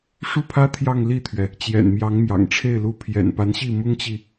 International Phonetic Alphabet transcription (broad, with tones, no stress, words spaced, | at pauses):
ʂu˥˩pʰä˥ t̪ʰjɑ˥˧ŋli˥˩t̪ʰɥɛ˩ | t͡ɕjɛ̰˨˩nmjɑ˧˥ŋmjɑ̰˨˩ŋʈ͡ʂʰe˥˩ɪ̯ lu˧˥ pʰjɛ̰˨˩npa˧˥nɕi˥˩ mʊ˥ŋt͡ɕi˨